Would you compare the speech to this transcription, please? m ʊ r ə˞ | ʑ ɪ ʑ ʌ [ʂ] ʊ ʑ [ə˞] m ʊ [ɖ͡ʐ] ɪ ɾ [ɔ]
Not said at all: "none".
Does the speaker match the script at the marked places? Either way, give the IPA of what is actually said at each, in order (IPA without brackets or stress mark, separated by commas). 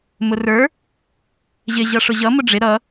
ʂ, ʌ, ɖ͡ʐ, ʌ